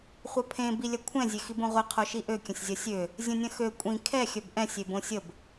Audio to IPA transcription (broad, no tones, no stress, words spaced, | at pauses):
χʷɐpʰẽ bilʲɐkʷʰɛ̃ zʲexibõʁʷi qʰoʃiʔø kʲə̃sʲzʲɐsʲø | zʲə̃nʲɐ̃xø kʷʼĩ kʰɛ xʲœbʔɛ̃ sʲebõsʲəb